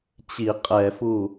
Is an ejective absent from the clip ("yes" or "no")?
no